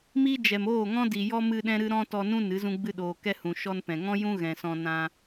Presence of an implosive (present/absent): present